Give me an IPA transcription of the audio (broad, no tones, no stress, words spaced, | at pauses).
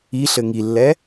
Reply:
iɬɘ ŋilːɛ